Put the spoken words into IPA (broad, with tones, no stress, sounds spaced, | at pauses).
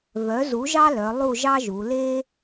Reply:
v œ˩˥ z u˩˥ ʒ ɑ˦ l œ˩˧ lˠ u˦˨ ʒ ɑ˦ ʒ u˩˧ l e˦